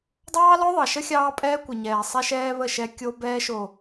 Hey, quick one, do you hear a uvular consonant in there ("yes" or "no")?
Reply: no